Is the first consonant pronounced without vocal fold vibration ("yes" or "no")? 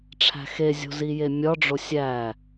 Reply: yes